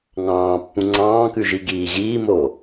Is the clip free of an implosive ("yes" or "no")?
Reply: yes